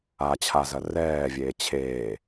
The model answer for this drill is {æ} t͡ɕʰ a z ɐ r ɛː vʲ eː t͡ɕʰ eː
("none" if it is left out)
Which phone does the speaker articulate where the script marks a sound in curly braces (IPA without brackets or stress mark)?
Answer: a